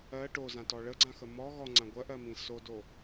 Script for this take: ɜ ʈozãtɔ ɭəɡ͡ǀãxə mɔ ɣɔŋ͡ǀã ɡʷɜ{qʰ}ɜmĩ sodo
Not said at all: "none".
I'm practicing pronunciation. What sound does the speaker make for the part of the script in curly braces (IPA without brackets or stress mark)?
ʔ